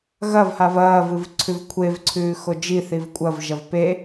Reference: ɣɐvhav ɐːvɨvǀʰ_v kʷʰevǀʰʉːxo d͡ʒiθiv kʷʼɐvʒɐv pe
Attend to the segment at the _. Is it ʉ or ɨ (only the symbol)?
ʉ